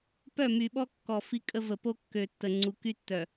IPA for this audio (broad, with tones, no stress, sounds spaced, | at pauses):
p œ˦˨ m y˨ ɓ ɔ˦ kː ɔ˨ f i˦ kʼ ə˦ v ə˨ p o˦ kː ø˨ tː ə˨ ŋ͡ǀ u˨ k y˦ tː œ˨